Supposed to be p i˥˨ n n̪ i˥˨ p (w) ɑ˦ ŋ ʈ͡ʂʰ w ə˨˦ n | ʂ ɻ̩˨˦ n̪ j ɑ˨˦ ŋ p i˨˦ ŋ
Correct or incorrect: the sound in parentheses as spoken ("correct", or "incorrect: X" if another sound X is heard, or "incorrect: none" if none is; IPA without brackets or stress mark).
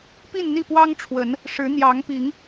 correct